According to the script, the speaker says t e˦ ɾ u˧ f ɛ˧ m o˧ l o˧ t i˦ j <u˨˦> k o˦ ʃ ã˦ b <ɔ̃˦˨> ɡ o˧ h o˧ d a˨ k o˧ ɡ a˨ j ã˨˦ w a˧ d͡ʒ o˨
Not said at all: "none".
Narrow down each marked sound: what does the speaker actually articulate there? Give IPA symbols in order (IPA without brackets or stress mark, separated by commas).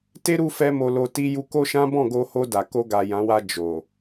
u˧, ɔ̃˦˨